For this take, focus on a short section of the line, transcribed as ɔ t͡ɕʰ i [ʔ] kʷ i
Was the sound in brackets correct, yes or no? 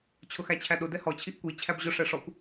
yes